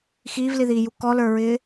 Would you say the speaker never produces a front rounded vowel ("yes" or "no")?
yes